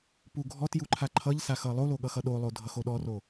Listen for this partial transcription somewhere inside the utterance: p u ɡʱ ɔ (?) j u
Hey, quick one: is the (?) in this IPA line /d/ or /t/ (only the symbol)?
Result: t